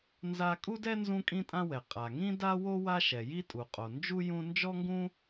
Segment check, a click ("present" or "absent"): absent